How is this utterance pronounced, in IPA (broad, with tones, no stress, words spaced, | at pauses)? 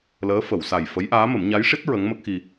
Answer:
ləː˧˥fə˨˩˨w sa˨˩jfə˧˥jʔaː˧˥mə˨˩˦m ɲa˧˥jʂi˦˥t̚ ɹə˧˥ŋmə˦˥k̚xi˧